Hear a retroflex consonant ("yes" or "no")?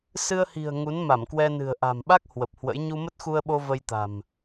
no